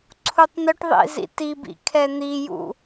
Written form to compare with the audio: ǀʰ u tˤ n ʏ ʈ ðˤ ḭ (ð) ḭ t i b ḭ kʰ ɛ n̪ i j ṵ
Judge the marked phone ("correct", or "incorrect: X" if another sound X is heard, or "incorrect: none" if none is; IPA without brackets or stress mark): incorrect: z